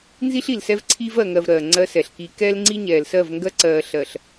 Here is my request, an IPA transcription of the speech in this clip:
n z i˦ ɬ i˨ l s ɛ˦ v ǀʰ iː˦ v ɜ˨ ŋ ɜ˨ v ɾ ɜː˨ ŋ͡ǀ ɜ˦ s ɛ˨ ɬ k i˦ k ɛː˦ l ŋ͡ǀ i˦ ɲ ɛː˨ l s ɜ˦˨ v ŋ ɡ ɜ˦ ǀ ɜː˨ ɬ ɜ˨ ɬ

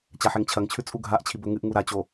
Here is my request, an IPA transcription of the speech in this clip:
t͡ɕ a ħ e ŋ t͡ɕʰ ɐ ŋ t͡ɕʰ ʉ t͡sʼ u ɡʱ a ʔ t͡ɕʰ i b ɵ ŋ ɨ ʔ ŋ u ɾ a t͡ɕ o

